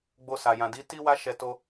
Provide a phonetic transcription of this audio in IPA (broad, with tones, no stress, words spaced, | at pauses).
ɡ͡bo˧sa˨jã˨di˨˦ ti˦wa˦ʃɛ˧ to˧